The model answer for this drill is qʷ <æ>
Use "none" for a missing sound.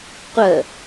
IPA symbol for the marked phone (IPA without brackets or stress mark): ɜ